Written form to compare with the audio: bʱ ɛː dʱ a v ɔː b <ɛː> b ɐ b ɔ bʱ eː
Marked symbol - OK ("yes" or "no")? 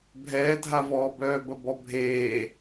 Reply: no